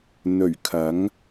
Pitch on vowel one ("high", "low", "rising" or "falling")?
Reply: low